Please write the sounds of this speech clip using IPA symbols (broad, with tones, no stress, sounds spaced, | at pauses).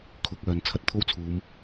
kʰ ʊ˨˥ k̚ œː˨ n t͡sʰ ɐ˧ t̚ t̪ʰ o˥ w t͡sʰ uː˨˧ m